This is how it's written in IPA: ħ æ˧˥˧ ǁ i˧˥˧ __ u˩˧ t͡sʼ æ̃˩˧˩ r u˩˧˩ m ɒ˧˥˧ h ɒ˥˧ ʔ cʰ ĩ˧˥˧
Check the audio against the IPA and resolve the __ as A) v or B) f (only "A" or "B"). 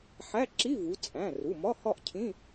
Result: A